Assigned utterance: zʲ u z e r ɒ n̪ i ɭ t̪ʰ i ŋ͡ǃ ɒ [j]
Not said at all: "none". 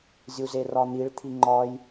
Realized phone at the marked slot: j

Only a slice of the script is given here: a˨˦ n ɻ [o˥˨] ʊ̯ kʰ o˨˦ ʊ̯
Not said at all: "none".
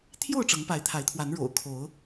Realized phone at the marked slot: o̰˨˩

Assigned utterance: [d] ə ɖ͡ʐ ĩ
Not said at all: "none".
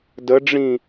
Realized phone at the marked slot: d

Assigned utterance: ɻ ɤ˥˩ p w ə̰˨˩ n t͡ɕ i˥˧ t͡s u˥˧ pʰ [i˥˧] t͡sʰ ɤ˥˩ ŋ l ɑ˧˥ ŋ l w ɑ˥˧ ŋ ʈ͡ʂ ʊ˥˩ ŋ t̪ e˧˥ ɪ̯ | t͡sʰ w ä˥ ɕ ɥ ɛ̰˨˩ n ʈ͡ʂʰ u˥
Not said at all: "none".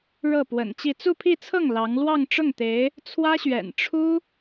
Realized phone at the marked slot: i˥˧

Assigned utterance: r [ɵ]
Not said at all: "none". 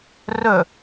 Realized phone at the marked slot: ɵ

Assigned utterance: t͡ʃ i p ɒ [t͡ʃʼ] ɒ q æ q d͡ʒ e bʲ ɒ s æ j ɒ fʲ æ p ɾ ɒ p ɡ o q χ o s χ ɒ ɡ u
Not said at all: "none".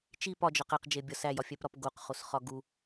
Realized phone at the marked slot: d͡ʒ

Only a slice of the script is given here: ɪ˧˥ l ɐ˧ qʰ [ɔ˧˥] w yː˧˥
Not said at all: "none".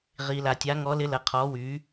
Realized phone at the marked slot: ɔː˧˥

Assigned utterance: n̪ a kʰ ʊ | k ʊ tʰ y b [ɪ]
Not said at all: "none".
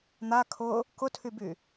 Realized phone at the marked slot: y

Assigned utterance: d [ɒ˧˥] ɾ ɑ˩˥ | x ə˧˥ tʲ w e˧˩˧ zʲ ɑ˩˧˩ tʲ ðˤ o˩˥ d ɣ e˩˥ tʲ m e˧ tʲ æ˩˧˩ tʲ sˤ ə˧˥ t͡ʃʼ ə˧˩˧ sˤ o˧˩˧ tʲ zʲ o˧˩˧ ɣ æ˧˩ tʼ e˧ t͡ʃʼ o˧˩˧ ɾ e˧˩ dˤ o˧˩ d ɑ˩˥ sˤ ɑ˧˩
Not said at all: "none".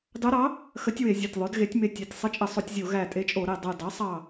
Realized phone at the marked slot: ɑ˧˥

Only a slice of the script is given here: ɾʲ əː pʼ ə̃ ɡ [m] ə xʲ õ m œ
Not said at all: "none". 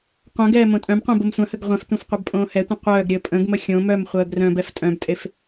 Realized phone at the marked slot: m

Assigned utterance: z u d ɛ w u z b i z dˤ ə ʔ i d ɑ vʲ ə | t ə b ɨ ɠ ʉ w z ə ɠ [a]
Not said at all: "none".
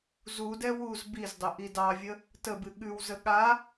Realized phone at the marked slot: a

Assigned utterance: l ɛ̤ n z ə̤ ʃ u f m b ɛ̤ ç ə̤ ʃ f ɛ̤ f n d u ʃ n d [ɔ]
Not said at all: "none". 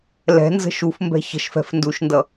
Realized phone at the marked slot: ʌ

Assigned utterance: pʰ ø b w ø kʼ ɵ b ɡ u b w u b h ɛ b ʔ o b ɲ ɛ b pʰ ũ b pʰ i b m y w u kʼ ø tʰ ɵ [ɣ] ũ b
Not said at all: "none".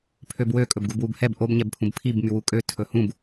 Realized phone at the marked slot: h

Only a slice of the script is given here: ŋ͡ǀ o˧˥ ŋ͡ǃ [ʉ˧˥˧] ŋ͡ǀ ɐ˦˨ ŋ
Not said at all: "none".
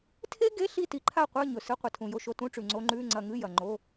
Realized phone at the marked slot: ʉ˧˥˧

